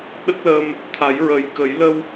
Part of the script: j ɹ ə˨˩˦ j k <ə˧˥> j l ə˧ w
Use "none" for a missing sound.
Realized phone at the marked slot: ə˨˩˦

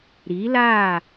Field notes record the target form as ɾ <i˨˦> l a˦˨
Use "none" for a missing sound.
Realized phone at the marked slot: i˨˦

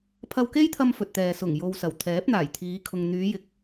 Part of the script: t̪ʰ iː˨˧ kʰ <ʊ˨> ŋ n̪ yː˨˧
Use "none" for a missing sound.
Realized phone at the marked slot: ʊ˨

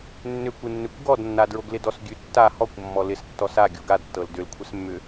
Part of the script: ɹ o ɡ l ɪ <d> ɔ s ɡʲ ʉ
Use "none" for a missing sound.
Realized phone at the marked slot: d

